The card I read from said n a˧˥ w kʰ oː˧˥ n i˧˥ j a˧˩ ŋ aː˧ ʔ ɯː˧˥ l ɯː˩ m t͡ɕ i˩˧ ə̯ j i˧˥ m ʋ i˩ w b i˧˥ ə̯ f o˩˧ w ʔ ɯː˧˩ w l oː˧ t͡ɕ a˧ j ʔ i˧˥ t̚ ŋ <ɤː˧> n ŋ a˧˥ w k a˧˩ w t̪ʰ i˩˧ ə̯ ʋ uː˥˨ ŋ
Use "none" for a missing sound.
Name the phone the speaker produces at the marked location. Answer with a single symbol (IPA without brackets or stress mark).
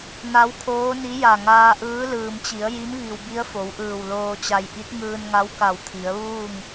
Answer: ɯː˧